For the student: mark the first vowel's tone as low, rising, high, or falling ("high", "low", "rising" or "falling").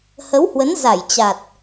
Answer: rising